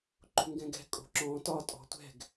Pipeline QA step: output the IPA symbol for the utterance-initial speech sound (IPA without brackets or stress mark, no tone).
ǃ